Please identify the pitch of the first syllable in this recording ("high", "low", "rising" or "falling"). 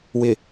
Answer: low